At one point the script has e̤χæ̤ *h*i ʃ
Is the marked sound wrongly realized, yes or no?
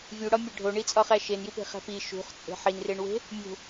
yes